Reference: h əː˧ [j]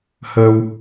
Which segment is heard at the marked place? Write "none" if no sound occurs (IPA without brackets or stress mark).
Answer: w